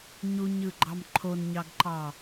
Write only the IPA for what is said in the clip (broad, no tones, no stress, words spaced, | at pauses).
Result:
ɲuɲɯɡ͡ǃɑm ǃʰonɲɑɡǃɑ